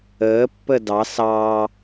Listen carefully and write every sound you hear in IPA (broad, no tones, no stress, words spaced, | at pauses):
əːpːə dɑs ɑ